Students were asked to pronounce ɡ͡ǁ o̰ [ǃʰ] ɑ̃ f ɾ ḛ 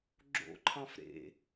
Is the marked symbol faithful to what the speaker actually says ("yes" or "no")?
yes